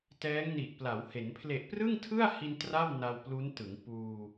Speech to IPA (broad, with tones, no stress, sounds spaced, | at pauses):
t ɛː˦˥ ŋ n i˨˩ ʔ p l a˩˦ w h e˩˦ n pʰ l e˨˩ ʔ p r ɯ˥˩ ŋ tʰ ɯ˥˩ a̯ h i˧ n t r a˥˩ w n a˧ w p l u˦˥ n t ɯ˩˦ ŋ p uː˧